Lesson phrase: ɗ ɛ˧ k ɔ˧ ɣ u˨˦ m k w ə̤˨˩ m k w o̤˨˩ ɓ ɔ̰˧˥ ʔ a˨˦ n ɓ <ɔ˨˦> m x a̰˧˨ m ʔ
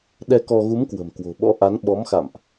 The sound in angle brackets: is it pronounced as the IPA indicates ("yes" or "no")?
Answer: yes